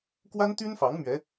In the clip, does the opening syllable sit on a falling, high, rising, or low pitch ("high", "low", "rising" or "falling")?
high